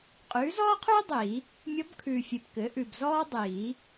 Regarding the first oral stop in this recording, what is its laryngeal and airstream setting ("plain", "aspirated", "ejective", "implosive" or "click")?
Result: ejective